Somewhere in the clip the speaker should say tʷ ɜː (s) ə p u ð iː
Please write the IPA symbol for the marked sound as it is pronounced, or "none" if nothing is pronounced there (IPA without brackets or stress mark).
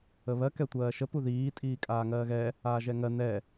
ʃ